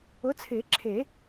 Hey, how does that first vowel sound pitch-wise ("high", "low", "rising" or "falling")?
rising